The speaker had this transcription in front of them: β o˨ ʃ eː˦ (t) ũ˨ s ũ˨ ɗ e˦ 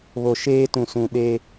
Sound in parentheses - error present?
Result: no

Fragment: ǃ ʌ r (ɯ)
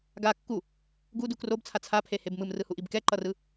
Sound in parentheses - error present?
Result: no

